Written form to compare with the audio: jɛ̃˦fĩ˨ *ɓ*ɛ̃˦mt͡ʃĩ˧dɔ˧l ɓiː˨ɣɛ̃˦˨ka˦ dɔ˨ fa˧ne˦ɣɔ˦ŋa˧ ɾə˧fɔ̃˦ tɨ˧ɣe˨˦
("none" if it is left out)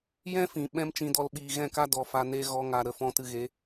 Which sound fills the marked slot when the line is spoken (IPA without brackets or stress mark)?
ɓ